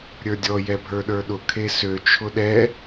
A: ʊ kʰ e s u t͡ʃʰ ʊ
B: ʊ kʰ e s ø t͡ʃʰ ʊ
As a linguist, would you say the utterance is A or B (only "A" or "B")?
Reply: B